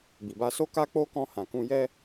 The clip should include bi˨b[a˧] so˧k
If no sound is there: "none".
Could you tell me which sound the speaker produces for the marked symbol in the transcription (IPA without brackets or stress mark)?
a˧